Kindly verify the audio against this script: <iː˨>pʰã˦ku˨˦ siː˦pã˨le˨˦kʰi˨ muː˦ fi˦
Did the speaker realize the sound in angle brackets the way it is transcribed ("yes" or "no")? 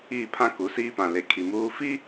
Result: no